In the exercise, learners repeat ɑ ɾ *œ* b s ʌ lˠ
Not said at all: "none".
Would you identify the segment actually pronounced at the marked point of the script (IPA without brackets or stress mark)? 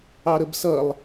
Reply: ə